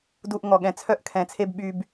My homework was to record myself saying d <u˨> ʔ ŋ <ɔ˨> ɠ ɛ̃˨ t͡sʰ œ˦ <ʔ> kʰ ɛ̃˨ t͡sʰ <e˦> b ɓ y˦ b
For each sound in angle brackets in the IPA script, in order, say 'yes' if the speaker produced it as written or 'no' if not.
yes, yes, yes, yes

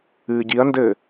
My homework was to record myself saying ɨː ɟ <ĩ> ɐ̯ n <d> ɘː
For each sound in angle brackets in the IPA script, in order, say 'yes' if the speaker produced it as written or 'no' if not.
no, yes

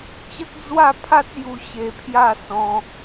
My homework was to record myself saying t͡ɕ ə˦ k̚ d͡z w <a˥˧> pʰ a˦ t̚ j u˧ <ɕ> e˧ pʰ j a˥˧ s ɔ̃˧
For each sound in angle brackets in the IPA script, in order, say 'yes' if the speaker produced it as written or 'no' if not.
yes, yes

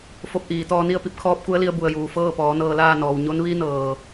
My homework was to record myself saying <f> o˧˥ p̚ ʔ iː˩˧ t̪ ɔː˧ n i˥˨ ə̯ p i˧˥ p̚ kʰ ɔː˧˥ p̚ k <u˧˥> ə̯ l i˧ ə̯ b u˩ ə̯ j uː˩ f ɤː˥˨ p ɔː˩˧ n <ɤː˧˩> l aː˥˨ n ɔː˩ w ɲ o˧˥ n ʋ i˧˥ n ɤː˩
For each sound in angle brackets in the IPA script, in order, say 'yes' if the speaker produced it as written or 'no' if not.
yes, yes, no

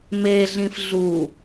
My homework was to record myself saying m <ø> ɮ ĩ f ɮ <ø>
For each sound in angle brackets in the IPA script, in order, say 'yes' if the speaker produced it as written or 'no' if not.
no, no

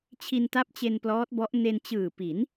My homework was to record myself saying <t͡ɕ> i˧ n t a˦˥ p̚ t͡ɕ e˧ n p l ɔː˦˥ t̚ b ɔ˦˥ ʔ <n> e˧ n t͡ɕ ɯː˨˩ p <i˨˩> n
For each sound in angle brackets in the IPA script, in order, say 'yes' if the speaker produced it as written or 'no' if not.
no, yes, no

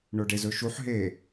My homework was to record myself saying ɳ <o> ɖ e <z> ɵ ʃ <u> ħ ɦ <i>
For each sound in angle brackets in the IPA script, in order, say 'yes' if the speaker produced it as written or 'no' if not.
yes, yes, yes, no

